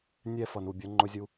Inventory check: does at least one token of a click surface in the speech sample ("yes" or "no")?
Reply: yes